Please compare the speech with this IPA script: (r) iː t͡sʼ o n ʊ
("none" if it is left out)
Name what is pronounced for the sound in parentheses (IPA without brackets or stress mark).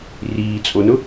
r